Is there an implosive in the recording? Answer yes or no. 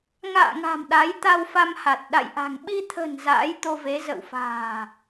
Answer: yes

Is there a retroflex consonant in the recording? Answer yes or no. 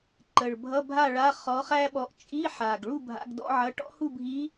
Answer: yes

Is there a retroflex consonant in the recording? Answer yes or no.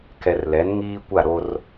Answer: no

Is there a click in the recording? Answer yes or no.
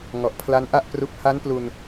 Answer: no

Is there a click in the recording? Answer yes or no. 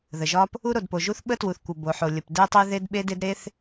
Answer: no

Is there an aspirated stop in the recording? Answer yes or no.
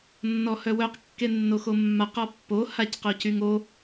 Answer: no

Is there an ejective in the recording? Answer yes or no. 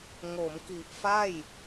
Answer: no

